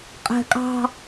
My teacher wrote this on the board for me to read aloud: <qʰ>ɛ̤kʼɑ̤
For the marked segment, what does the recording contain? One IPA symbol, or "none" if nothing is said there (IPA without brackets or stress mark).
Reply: qʼ